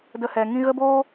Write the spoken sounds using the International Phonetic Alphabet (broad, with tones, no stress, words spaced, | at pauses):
də˧hɛ˨ ŋĩ˧ɣə˦boː˦